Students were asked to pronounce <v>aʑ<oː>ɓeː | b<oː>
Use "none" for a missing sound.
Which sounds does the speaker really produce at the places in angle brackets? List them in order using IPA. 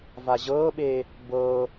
v, ɤː, ɤː

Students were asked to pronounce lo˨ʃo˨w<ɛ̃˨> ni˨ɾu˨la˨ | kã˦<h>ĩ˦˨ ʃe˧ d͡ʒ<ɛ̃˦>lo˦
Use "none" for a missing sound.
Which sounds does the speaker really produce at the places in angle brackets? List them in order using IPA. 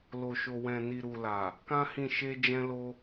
ɛ̃˨, h, ɛ̃˦

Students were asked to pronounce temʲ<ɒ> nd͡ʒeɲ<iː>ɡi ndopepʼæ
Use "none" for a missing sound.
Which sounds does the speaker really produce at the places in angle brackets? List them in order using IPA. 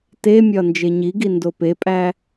ɒ, i

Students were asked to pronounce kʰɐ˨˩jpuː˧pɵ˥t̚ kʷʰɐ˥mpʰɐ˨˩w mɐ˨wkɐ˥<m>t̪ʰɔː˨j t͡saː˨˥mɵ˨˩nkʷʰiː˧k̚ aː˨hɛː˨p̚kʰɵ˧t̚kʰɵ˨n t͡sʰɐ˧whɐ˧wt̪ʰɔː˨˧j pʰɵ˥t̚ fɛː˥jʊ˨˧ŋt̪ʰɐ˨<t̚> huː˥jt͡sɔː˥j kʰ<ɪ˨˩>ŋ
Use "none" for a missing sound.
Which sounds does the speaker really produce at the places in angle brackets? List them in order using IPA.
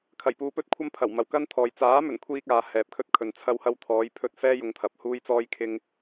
n, p̚, ɪ˥

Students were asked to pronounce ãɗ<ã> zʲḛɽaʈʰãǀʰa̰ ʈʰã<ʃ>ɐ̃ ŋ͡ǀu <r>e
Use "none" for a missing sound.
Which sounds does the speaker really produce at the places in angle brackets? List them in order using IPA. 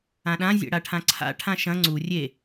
ã, ʃ, rʲ

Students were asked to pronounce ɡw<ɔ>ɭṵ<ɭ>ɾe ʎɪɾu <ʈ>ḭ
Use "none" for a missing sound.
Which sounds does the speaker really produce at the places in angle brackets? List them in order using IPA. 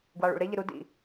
ɑ, ɭ, d

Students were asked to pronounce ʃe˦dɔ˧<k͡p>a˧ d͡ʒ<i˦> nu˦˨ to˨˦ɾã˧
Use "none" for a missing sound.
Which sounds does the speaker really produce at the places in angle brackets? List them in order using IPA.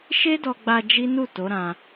ɡ͡b, i˦

